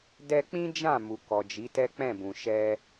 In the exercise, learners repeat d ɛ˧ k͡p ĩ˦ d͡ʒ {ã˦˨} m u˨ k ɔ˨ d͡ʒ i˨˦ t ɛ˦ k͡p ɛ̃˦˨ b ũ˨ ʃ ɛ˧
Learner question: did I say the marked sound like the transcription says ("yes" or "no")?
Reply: yes